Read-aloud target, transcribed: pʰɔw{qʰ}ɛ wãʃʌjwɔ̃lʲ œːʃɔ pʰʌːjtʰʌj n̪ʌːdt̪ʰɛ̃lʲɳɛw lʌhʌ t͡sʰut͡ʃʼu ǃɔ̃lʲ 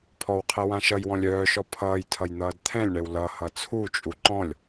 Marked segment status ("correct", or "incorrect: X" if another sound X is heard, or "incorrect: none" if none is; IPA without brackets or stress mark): correct